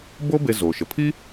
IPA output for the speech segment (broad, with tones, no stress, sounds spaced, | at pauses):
b o˥ b e˧ z oː˩ ʃ ə˩ pʰ i˥